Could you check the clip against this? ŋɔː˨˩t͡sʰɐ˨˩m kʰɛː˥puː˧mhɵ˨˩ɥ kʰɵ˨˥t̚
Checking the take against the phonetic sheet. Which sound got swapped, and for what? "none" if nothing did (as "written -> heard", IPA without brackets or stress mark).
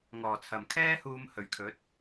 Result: p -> h